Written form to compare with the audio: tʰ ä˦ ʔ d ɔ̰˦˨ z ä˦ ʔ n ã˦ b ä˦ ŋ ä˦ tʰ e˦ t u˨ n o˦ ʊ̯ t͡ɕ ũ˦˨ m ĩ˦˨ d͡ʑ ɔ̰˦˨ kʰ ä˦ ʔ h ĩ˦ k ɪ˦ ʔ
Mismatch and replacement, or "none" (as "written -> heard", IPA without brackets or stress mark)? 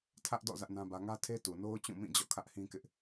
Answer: none